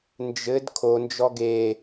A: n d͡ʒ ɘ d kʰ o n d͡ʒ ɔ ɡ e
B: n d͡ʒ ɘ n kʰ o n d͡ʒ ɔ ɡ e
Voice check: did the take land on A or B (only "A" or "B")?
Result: A